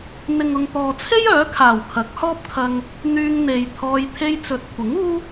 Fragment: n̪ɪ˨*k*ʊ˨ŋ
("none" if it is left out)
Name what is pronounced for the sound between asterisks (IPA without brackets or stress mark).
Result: ŋ